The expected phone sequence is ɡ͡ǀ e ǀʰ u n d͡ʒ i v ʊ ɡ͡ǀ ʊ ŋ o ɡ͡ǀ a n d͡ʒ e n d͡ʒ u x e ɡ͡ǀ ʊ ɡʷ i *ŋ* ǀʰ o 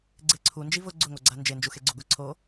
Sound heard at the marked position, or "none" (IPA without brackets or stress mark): none